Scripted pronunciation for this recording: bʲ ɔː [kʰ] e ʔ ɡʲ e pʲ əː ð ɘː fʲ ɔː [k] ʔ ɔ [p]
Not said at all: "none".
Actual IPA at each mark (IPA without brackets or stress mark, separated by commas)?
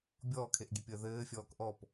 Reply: kʰ, k, p